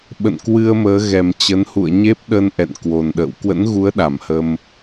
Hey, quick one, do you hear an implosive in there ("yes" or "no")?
yes